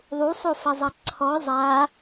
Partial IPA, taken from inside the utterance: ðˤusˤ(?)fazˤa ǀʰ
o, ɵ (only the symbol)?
o